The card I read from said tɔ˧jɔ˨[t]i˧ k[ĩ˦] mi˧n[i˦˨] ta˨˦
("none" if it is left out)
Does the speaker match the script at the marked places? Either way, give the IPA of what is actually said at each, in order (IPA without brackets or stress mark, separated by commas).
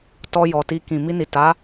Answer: t, ĩ˨, i˨